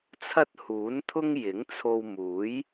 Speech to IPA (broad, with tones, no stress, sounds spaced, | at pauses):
t͡sʰ ɐ˥ t̚ h uː˨˥ n t̪ʰ ʊ˥ ŋ j ɪ˨˥ ŋ t͡sʰ o˧ w m uː˨˥ j